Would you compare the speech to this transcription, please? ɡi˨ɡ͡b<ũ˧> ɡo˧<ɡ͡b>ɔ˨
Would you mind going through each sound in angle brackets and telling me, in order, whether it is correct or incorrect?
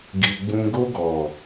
correct, incorrect: ɡ

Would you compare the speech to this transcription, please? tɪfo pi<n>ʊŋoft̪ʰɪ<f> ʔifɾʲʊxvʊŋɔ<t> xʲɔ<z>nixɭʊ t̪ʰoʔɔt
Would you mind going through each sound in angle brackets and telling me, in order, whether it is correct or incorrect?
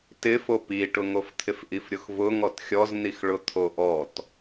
incorrect: ʈ, correct, correct, correct

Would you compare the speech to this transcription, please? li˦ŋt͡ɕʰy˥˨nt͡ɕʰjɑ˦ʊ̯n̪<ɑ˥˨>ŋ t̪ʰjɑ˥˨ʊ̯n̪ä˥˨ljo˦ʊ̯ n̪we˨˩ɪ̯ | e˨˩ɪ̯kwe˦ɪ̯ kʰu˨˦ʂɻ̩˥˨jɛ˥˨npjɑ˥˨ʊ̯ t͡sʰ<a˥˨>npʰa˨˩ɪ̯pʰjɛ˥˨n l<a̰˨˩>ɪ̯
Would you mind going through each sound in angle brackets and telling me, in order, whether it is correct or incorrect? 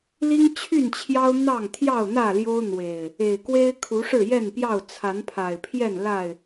correct, incorrect: a˨˦, incorrect: a˥˨

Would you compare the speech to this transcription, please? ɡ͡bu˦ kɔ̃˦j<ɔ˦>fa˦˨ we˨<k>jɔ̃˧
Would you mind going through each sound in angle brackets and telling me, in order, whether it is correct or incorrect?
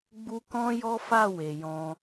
correct, incorrect: none

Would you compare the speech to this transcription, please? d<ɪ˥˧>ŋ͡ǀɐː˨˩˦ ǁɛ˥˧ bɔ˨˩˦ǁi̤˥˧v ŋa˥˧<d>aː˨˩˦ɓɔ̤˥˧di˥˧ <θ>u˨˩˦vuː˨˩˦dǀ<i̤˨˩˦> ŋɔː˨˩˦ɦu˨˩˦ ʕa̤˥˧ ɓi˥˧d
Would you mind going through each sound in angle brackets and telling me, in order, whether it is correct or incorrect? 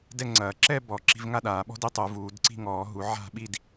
incorrect: ɛ˥˧, incorrect: ɗ, incorrect: tˤ, incorrect: i̤˥˧

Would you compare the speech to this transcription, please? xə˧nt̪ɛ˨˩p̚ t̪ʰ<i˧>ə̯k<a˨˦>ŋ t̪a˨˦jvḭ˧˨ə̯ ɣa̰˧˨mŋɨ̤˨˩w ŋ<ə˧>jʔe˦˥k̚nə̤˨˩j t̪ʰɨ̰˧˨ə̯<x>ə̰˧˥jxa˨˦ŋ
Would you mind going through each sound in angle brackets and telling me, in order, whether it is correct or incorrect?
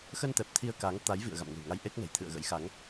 correct, correct, incorrect: a˧, incorrect: ɣ

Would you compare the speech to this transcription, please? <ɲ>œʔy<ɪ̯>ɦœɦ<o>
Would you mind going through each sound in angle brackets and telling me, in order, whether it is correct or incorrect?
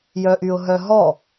incorrect: j, incorrect: ʊ̯, incorrect: ɔ

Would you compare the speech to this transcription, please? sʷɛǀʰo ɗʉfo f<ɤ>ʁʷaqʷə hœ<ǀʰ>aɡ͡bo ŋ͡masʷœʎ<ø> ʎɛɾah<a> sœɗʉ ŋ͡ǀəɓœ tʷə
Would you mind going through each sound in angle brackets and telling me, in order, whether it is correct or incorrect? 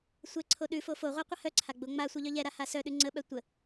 incorrect: o, correct, incorrect: œ, correct

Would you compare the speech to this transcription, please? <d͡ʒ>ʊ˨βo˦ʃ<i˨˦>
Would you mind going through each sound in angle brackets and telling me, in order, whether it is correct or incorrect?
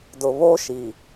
incorrect: d, incorrect: i˨

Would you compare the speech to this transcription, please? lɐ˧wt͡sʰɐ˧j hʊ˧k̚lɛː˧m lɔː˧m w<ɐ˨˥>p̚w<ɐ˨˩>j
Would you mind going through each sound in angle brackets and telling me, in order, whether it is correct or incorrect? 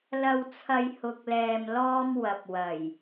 incorrect: ɐ˨, correct

